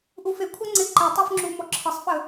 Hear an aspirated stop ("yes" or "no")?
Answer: yes